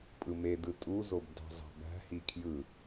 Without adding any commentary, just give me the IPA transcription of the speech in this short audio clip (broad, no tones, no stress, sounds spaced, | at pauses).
pʼ ɯ m e d ɯ tʼ u z o b d ɑ̤ z ɑ̤ b æ̤ h i kʰ j ɯ